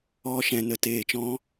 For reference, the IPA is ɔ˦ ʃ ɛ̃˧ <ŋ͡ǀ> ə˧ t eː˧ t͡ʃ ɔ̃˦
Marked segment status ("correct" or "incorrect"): incorrect